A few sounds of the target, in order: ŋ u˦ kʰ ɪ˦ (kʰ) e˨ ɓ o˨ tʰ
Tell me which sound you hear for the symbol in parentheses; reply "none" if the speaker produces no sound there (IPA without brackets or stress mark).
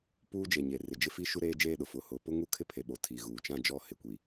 pʰ